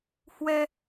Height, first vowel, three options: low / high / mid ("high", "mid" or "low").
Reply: mid